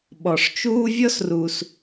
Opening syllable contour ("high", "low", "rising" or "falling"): low